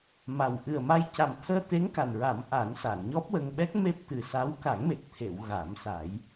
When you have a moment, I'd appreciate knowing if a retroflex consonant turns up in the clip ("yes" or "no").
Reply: no